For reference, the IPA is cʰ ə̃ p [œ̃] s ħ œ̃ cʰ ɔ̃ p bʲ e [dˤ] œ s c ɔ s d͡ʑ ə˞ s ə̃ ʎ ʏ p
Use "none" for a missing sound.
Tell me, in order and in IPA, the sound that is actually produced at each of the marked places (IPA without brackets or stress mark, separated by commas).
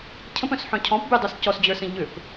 œ̃, dˤ